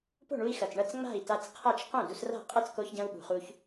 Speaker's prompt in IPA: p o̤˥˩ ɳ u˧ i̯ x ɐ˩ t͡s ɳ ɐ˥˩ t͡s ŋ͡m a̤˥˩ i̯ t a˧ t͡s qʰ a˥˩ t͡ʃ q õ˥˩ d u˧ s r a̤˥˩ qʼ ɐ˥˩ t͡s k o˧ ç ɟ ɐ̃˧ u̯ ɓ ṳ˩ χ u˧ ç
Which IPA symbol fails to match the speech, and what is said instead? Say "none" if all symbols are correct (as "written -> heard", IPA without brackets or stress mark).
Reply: none